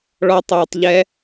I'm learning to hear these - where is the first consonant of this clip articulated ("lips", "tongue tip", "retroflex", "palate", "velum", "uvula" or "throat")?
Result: retroflex